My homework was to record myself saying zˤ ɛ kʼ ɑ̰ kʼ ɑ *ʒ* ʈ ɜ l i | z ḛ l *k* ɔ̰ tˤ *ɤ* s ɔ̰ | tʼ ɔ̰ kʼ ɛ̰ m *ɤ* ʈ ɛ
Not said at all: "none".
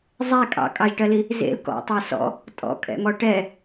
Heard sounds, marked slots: ʒ, k, ɤ, ɔ

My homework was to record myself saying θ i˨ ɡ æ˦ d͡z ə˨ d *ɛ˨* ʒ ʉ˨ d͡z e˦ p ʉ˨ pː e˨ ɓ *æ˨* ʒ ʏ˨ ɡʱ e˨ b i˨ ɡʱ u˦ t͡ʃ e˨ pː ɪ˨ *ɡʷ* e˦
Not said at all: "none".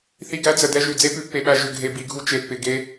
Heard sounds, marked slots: ɛ˦, æ˨, ɡ

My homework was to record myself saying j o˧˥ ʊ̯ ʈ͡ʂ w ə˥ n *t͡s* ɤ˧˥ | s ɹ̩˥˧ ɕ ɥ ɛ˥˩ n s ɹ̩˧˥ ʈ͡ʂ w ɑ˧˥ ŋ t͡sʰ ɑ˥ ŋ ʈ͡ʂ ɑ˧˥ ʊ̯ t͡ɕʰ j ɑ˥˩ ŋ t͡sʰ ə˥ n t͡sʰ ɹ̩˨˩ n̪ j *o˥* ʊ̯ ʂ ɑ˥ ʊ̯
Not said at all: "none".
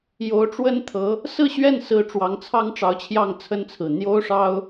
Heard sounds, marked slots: t̪ʰ, o˥

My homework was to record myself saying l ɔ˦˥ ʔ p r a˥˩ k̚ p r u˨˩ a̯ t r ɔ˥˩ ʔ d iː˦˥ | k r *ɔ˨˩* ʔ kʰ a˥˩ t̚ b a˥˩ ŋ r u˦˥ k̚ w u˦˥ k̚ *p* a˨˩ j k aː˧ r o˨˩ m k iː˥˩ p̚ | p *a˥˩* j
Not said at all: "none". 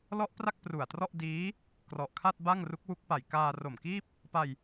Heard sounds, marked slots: ɔ˨˩, p, a˧

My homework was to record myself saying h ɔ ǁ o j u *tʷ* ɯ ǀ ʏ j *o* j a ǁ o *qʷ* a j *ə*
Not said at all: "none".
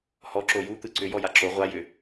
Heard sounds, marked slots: t̪, ɔ, ʁʷ, ʏ

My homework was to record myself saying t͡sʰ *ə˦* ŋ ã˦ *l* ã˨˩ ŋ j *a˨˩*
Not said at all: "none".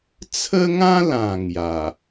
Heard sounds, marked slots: ə˦, l, a˨˩

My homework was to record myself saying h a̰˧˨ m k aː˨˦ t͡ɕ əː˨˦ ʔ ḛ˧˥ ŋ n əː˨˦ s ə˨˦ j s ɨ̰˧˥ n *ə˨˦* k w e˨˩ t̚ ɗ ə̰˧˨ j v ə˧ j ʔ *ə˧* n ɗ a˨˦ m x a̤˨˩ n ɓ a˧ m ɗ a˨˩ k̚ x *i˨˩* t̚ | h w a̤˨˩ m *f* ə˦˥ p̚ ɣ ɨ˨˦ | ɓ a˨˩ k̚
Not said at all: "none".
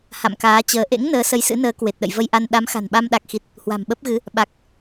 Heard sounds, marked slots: əː˨˦, a˧, i˨˩, ɓ

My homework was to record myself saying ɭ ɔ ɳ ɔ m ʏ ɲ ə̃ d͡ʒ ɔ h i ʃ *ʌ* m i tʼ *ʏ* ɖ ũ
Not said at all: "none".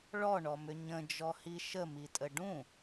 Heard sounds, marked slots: ə, ə

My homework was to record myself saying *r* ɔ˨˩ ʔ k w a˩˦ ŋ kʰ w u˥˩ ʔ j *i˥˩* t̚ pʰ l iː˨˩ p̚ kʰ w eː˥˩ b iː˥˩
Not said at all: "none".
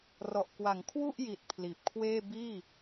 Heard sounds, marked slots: r, i˨˩

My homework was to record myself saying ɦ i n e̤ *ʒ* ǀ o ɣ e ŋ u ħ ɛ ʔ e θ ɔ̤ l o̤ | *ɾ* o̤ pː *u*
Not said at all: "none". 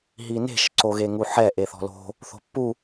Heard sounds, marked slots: ʃ, θ, u

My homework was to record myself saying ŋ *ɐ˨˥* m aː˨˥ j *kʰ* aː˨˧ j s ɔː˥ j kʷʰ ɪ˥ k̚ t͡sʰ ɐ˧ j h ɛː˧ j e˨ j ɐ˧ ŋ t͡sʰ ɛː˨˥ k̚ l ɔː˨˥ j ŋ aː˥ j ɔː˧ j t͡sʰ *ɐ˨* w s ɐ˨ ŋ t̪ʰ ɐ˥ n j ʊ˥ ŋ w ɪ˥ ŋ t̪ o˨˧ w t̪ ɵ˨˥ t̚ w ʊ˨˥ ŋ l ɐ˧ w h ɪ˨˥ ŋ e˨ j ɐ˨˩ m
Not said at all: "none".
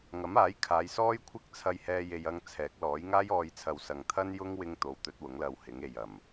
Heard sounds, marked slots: ɐ˨˥, kʰ, ɐ˨

